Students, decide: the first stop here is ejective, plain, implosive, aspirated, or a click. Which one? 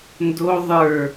plain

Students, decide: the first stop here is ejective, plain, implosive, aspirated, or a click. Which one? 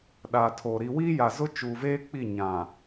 implosive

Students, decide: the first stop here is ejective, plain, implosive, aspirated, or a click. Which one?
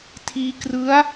aspirated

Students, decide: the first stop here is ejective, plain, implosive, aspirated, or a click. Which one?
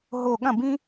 implosive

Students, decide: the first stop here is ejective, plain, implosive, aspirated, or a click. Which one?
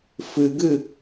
plain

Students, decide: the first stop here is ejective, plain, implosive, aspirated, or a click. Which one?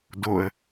plain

